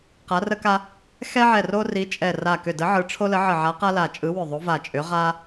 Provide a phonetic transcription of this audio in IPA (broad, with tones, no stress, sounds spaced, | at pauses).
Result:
q a˨˥ r ə˦ k a˦ | x ɛ˦ ʕ ɛ˧˩ r o˦ r i˨˥ t͡ʃʼ ɛ˧˩ r a˧˩ k ʏ˧˩ d ə˨˥ ʕ ɯ˨˥ ʈ͡ʂʰ o˦ l ə˨˥ ʕ ə˧˩ ʕ a˨˥ q a˦ l a˧˩ t͡ʃʼ ɯ˨˥ w ʏ˧˩ ðˤ o˨˥ v a˧˩ t͡ʃʼ ʏ˨˥ ʁ a˦